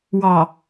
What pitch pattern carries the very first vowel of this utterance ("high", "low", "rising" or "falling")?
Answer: low